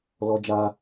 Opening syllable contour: high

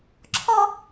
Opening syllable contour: high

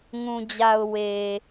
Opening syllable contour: low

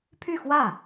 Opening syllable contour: falling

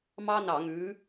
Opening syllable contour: high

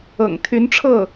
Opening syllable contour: low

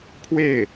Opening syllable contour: falling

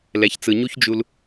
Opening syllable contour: low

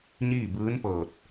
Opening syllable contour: falling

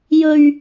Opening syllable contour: high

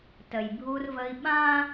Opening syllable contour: low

